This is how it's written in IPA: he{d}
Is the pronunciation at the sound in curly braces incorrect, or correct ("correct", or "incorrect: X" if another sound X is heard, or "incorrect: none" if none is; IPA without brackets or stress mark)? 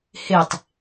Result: incorrect: tˤ